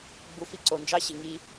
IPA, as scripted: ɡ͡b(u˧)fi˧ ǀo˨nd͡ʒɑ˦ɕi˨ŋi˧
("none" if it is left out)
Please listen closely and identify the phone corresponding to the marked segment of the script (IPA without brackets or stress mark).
u˧